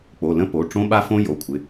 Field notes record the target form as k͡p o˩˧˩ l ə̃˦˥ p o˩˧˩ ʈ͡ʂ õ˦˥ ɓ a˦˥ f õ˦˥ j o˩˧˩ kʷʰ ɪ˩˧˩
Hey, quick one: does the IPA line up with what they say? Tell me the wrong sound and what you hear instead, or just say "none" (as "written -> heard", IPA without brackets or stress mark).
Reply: none